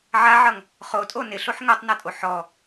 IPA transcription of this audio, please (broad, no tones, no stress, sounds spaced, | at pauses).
ʕ a ʕ ʌ ŋ | χ o tʼ o n ɪ ɬ o ħ ŋ o tˤ n ʌ tʼ o ħ ɔ